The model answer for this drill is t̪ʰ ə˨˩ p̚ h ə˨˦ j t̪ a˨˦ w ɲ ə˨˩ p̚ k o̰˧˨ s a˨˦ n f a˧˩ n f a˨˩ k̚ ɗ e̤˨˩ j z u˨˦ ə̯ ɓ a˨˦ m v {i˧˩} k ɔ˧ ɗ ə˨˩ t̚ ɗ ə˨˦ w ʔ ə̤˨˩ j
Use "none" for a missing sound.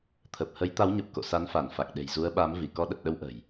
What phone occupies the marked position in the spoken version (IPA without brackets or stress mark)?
i˧˩